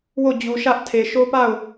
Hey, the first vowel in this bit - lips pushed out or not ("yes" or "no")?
yes